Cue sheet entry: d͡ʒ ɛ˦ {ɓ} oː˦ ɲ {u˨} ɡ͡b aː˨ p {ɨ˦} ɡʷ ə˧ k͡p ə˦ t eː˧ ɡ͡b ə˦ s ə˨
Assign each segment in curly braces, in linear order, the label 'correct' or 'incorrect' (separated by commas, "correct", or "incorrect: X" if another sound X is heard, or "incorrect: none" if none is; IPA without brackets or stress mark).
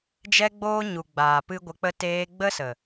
incorrect: ɡ͡b, correct, correct